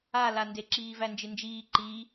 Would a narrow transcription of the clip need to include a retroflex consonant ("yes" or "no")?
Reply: no